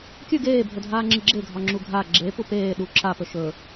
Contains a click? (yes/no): yes